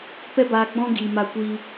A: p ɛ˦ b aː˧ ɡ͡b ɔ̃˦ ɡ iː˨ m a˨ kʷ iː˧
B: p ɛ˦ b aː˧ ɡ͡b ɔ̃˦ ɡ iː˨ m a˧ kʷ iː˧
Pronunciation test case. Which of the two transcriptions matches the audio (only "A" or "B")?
B